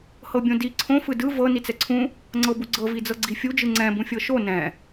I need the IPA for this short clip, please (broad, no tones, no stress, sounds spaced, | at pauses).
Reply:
h ɤ bʲ õ d i ǀʰ õ f ɯ d ɯ v ɤ n i t͡s ɛ ǀʰ ũ | ŋ͡ǀ ɤ b u ɡ͡ǀ ɤ v i d͡z ɤ ɡ͡ǀ i fʲ u d͡ʒ ɯ ŋ͡ǀ ɛ̃ b ũ fʲ ɤ ʃ o n ɛ̃